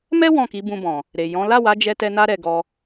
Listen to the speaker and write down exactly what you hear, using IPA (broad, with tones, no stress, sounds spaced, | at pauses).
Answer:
m ɛ˦ w ɔ̃˦˨ k i˨˦ b ũ˧ b ɔ̃˨ | ɾ e˨ j ɔ̃˨˦ l a˦˨ w a˨˦ d͡ʒ ɛ˧ t ɛ˧ n a˦ ɾ ɛ˧ ɡ ɔ˧